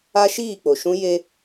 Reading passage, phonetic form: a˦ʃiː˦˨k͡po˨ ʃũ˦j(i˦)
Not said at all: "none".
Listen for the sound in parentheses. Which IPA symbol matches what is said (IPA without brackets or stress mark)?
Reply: e˦